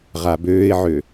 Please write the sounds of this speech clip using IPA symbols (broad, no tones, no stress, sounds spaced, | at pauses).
ʁ a b øː ɪ̯ ʕ ø